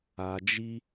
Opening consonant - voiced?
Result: yes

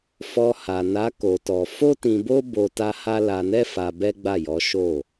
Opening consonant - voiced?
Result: no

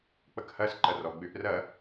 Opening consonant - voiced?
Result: no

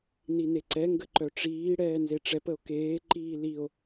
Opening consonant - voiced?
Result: yes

